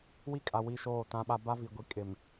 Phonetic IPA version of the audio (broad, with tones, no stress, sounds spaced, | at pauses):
w i˦ kʼ a˨ w i˦˨ ʃ oː˦˨ t ã˦ ɓ a˦ b a˦ v i˨ ɡʷ i˨ kʼ ɪ˨ m